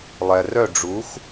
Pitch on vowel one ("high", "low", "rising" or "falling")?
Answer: low